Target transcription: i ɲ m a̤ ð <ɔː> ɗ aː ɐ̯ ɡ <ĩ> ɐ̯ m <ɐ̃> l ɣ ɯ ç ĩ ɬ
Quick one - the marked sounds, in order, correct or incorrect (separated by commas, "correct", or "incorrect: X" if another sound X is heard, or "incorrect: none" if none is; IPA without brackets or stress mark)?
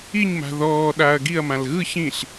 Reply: correct, incorrect: i, incorrect: ã